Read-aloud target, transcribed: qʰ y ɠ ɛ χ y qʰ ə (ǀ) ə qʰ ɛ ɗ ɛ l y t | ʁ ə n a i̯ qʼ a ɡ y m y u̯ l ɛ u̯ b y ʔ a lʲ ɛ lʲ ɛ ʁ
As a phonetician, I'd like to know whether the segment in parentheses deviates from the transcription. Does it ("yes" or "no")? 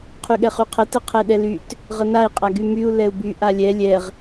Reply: yes